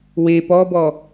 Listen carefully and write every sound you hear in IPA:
we pɔbɔ

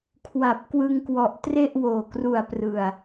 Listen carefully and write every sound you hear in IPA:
kʰwa˨˩p̚kwɯ˧ŋkwɔ˨˩ʔ tre˥˩ʔwoː˨˩kru˨˩a̯ prɯ˨˩a̯

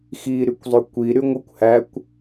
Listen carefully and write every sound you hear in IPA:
xi ɾykʷzˤøkʷi ɾyŋʷɯkʷ hækʷ

